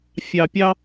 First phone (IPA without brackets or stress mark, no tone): fʲ